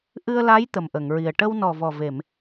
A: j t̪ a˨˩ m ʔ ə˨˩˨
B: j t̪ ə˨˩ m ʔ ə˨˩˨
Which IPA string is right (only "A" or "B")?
B